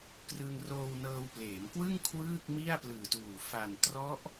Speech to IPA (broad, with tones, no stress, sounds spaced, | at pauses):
k r ɯ˧ ŋ r oː˧ w n ɤː˧ w p l eː˩˦ m k w ɯ˥˩ ŋ kʰ w ɯː˥˩ k̚ m i˥˩ a̯ p l ɯː˨˩ t uː˨˩ f a˨˩ n t r ɔ˦˥ ʔ